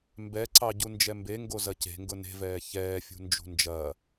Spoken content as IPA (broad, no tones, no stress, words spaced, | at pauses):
mbɛǀɑɟu nd͡ʒɛmbeŋɡozɐ ce̤ŋɡʊ ne̤vɛː çɛːfʲṳnd͡ʒṳ nd͡ʒɐː